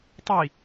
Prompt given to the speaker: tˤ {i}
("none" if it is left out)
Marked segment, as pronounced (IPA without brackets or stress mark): i